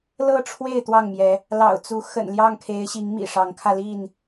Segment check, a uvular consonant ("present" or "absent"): absent